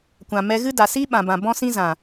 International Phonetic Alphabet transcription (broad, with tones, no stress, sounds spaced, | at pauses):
kʷ ã˨ m ɛ˧ ɣ ɨ˦ d a˨ s i˦ ɓ ã˨ b ã˨ b ɔ̃˦ s ĩ˦ z ã˨